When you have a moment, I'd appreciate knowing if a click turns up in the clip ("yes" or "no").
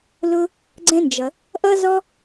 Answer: yes